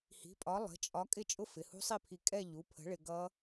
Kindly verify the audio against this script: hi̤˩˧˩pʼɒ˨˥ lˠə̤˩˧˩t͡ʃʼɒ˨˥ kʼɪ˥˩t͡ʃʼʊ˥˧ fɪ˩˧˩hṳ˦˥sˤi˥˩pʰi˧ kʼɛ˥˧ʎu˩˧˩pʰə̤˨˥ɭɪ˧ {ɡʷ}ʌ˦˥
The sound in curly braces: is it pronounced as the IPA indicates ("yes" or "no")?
no